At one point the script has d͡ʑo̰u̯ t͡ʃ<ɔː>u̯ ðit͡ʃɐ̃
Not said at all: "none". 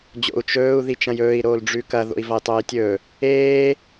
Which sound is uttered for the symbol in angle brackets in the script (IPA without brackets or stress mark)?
ɵː